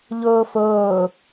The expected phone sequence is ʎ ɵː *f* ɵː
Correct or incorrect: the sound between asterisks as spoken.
correct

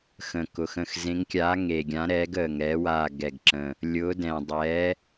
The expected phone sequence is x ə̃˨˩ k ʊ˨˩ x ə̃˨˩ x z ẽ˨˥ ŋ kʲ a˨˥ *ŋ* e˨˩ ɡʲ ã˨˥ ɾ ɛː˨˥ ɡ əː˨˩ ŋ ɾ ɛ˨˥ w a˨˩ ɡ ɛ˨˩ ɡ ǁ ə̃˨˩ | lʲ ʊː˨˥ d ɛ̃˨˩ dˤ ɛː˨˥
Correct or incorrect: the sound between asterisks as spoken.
correct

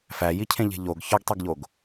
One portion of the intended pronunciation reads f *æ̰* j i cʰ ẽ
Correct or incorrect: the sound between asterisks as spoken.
incorrect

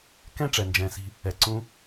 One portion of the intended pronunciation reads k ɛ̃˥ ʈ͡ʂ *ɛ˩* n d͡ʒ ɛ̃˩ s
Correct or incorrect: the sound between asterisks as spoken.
correct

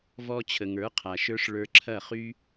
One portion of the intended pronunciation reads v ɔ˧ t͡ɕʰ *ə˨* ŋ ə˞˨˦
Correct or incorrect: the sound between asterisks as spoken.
correct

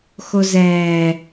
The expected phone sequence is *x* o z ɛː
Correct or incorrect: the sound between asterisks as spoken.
correct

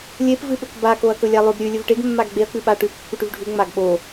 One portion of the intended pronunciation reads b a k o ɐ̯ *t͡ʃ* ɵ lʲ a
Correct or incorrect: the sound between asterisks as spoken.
incorrect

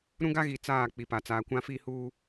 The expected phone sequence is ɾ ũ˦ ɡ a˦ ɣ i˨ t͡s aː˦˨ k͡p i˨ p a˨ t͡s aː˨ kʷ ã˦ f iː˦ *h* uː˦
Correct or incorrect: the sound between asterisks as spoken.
correct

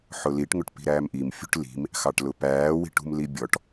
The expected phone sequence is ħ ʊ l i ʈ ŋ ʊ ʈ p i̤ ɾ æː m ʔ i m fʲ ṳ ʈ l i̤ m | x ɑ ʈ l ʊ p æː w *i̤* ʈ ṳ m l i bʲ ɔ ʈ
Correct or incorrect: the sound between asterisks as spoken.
correct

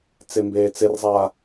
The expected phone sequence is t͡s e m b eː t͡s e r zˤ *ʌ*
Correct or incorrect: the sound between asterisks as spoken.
incorrect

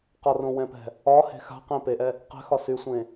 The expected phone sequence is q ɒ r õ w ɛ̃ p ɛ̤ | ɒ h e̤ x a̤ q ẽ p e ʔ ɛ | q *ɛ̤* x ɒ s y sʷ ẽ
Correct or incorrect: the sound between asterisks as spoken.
correct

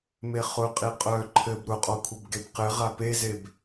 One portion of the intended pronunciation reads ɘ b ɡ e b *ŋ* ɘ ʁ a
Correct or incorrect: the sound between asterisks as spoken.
incorrect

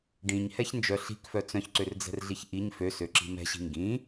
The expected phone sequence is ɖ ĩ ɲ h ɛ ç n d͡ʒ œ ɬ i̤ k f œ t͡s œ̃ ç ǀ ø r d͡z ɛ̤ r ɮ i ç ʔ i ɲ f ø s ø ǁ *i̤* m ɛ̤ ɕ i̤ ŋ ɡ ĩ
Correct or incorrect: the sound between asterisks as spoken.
correct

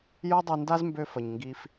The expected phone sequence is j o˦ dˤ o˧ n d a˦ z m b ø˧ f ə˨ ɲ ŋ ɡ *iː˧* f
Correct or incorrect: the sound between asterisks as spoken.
correct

